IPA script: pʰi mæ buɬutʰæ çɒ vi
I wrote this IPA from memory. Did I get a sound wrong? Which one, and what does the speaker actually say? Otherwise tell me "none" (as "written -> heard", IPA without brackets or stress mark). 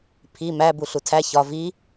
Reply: none